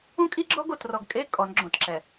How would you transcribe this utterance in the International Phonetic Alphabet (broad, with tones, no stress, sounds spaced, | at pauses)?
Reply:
ũ˦ kʼ i˦ ɡ͡ǁ ɔ˦ ɡ o˨ t r ɔ˨ ɡ kʼ e˦ kʼ ɔ˨˦ n ɡ͡ǁ õ˨ t ǁ ɛ˨